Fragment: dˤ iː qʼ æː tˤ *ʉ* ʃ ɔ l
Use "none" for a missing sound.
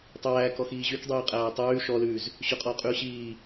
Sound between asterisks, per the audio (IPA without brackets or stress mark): ʉː